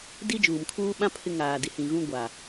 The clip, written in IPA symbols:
di˦d͡ʒuː˨mkʰuː˦ ɓã˦ pʰɪ˦ ŋaː˨di˨ hĩ˨ɣũ˦ ɡʷa˨

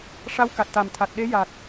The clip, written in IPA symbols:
ʂa˧˥wka˨˩t̚t̪a˨˩mt̪ʰa˨˩t̚ ɗe˧˥ja˨˩t̚

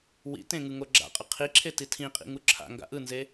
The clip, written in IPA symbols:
wḭtẽ ŋɯŋoɡ͡ǁa̰qʼʌ qʰiǁʰe titʰĩqʼḭ ŋuǁʰa̰ŋɡa̰ ʔɯnze

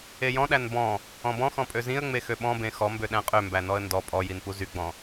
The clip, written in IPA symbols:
ejɔ̃ɗæn bɔ̃ | ɔ̃bɔ̃xɔ̃ pʼøzĩə̯ ŋ͡mexøɓɔ̃ bẽxɔmbøɗæ̃ qʼømbæ nɔə̯ndɔ pʼɔjin puzyɡ͡bɔ̃

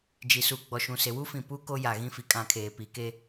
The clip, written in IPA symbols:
d͡ʒi˨su˨ ɡ͡bɔ˨ ʃũ˨se˨wu˦fĩ˨ pu˦ ko˦ja˨ ɣĩ˦fi˨kʼã˦˨ kʰeː˨pi˨ke˦

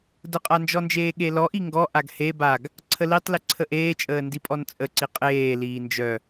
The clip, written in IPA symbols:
dəqʼand͡ʒɔnd͡ʒeː ɠelɔʔi ŋɡɔ ʔaɡhe baɡ | ǀʰəlitˤli ǀʰəʔeːt͡ʃʼəː ndipʼɔnt͡sʼəǀi qʼeː liːnd͡ʒœ

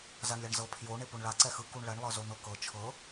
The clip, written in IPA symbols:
zaɳlʲaɳzɤ pʰjo ɳepoɳɭa ǀɛxɯ kuɳɭɛɳ lˠɤzon̪ɤkɤ t͡ʃʰɤ

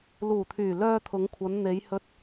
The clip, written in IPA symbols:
luː˨˩t̪ʰyː˨˩ lœː˧t̪ʰʊ˨˧ŋkʷʰɐ˨˧n n̪e˨˧jhɵ˧t̚

